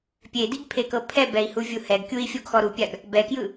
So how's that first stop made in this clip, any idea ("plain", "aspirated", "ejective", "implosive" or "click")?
plain